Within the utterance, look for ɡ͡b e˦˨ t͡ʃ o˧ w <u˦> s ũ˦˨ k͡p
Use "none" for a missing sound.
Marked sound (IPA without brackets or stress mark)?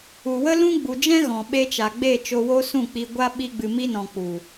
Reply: o˦